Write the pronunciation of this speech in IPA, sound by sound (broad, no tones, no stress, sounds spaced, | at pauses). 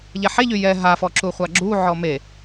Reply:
ʎ ɛ ħ e ʎ y j ɛ ɦ a f ɔ ǁ u χʷ a ɡ͡ǁ u ʕ ɔ m e